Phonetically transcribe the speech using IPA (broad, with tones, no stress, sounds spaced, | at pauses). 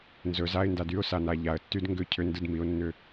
n z ɵ˩˧ z a˧˥˧ ɪ̯ n d a˦˨ d y˧˥˧ ʊ̯ s a˩˧ n a˩˧ ʎ a˩˧ ə̯ tː y˧˥˧ d ŋ ɡ ʏ˦˨ cʰ ʏ˧˥˧ n d ɯ˦˨ d m i˩˧ ʊ̯ nː ʏ˦˨